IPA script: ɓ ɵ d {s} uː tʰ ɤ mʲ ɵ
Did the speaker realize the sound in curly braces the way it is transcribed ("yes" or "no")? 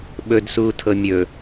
yes